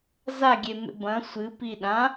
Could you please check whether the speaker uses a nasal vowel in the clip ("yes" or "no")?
yes